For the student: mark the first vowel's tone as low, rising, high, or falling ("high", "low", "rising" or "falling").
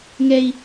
high